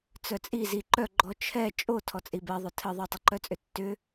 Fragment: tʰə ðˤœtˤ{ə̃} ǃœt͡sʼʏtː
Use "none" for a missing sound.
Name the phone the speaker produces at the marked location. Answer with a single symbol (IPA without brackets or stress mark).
ə